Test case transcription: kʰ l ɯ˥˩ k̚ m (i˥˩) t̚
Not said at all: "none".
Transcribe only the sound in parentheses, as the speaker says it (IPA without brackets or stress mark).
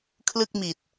i˨˩